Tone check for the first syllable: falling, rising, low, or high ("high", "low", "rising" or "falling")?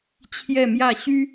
falling